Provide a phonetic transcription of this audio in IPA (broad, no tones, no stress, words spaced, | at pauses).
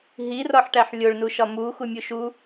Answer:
ɦi rɒħʈæħlʲoɭnu ʃɒmuxumʲu ʃu